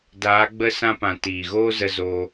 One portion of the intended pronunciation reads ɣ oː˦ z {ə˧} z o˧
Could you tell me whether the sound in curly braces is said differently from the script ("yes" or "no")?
no